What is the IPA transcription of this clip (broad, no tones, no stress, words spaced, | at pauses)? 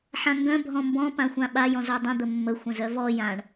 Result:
ħãŋɡœ̃ bʱɔ̃mbɔ̃ pãxʷãɓaj ɔ̃zœdˤə̃ d̪əmːə xʷə̃zœvɔ jãɳ